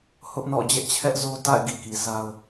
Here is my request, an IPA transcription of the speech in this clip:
h ʊ˦ ʔ n ɔ̰˦˨ d͡ʑ ɛ˦ ʔ t͡ɕʰ ɛ˦ ʔ z o˦ t a̰˦˨ ɪ̯ ɡ ḭ˦˨ k i˨ s a˦ ʊ̯

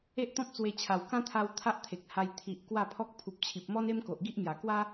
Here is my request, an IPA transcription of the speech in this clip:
e˦ ʔ t̪ ɔ̃˦ p̚ t͡s w e˧ t͡ɕʰ a˨˩ w k ã˦ t̪ʰ a˧ w t̪ʰ a˦ ʔ t̪ʰ e˨ k̚ h a˧ j t̪ʰ i˨ ʔ k w a˥˧ pʰ ɔ˦ k̚ pʰ u˨ p̚ t͡ɕʰ i˨ p̚ m ɔ˦ n e˦ m k o˨ ʔ ɡ i˦ ʔ m j a˨˩ k w a˦

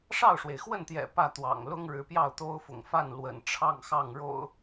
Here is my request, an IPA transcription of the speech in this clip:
ʂ ɑ˥˨ ʊ̯ ʂ w e˩ ɪ̯ x w ə˥˨ n t̪ j ɛ̰˨˩ p ä˥˨ t̪ w ɑ̰˨˩ ŋ l ʊ˦ ŋ ɻ ɻ̩˨˦ p j ɑ˥˨ ʊ̯ t̪ o˦ ʊ̯ f ʊ̰˨˩ ŋ f a˥˨ n l w ə̰˨˩ n ʈ͡ʂʰ ɑ˥˨ ŋ x ɑ˥˨ ŋ ɻ o̰˨˩ ʊ̯

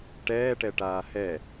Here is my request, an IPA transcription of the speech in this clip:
ʈ ɛː ʈ ɛ ʈ aː h ɛ

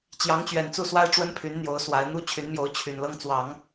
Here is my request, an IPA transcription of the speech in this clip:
t͡ɕ j ɑ˧˥ ŋ t͡ɕ ɥ ɛ˨˩ n t͡s u˥˩ s w a˥ ɪ̯ ʈ͡ʂ w ə˥ n pʰ y˧˥ n n̪ j o˧˥ ʊ̯ s w a˧˥ ɪ̯ n̪ u˥ t͡ɕʰ y˧˥ n m j o˧˥ ʊ̯ t͡ɕʰ y˨˩ n l ɤ˥ ŋ t͡s w ɑ˨˩˦ ŋ

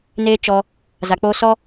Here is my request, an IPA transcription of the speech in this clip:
n eː˦ t͡ʃ ɔ˧ | z a˨ k͡p oː˧ s ɔ˦

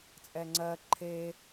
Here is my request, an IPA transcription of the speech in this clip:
t͡sʼ ɛ ŋ͡ǀ ɜ ǃʰ e

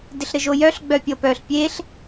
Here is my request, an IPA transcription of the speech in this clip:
d ɪ ɬ ɾ ɘ ʒ o j œ ɬ ɡ͡b œ pʲ ɤ p œː ɬ pʲ eː ɬ

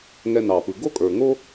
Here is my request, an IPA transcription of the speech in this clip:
ŋ ɛ˧ n ɑ˨ p ɯ˨ ɡ o˦ kʼ ə˞˨ ŋ o˦

